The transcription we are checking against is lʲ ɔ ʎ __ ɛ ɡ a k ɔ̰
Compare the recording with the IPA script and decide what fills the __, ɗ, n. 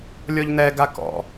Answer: n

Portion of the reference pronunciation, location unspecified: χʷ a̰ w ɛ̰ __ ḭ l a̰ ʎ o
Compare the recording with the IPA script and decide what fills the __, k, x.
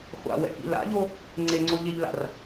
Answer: k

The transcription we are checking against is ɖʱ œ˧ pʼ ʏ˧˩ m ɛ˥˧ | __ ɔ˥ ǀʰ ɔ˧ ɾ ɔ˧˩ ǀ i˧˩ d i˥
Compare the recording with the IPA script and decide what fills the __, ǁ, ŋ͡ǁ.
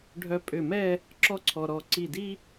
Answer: ǁ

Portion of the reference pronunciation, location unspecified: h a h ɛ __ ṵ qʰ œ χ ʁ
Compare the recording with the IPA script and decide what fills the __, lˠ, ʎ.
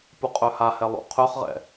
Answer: lˠ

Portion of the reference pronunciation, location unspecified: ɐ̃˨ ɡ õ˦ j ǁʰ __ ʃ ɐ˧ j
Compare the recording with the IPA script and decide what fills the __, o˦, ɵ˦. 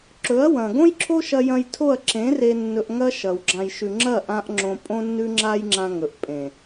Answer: o˦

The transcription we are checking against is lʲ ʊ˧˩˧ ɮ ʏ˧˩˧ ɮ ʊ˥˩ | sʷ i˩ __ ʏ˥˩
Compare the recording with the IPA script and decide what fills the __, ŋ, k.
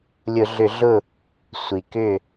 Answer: k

